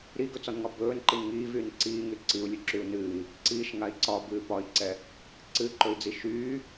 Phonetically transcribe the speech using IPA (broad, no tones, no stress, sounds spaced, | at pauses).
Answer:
ɾ i ɡ ɵ t͡s ɒ n ŋ ɒ b ɵː n ǃ i n ŋ iː v yː n ǀ iː ŋ y ǀ i u̯ lʲ ɵ ǁ y u̯ n ɨː i̯ | ǀ iː ʃ ŋ a i̯ ǀ ɒ b ɨː p ɒ i̯ ǀ ɛ | ǀ ɨ ǃ ɵ i̯ d͡z i ʃ yː